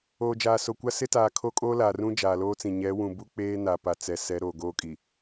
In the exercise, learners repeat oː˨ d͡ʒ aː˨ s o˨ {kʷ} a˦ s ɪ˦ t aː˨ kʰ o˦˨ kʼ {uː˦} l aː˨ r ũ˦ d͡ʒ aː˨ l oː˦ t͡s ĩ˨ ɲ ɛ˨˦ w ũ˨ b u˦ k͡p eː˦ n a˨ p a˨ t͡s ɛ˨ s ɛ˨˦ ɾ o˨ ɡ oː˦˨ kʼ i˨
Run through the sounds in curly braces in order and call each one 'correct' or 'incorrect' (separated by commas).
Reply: correct, incorrect